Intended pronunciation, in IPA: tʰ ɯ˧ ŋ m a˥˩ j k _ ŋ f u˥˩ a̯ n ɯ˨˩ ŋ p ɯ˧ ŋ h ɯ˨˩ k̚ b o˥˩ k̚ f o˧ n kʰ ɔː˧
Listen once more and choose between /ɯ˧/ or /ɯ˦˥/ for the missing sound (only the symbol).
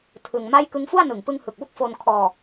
ɯ˦˥